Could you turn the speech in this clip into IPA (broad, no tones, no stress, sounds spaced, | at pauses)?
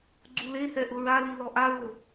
ɡ͡ǀ u l e h ɛ ʔ ʊ ɹ a l i l ɔ ʔ a ɹ o